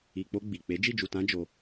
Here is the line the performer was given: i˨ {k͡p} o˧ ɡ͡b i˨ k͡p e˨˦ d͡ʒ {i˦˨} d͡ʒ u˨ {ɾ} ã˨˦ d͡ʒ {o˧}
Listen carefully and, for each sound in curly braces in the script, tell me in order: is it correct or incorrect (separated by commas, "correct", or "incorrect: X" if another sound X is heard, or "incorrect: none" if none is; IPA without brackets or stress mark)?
correct, correct, incorrect: t, correct